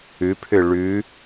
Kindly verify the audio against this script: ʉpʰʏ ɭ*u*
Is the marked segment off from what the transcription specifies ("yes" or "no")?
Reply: yes